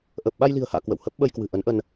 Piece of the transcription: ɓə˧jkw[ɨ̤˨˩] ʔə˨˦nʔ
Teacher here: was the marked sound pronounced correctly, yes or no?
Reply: yes